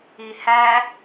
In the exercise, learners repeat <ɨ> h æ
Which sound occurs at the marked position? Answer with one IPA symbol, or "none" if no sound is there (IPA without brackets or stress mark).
i